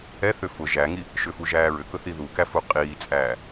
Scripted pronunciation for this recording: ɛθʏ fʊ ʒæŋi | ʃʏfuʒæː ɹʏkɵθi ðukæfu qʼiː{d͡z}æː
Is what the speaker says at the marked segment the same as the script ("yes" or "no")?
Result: no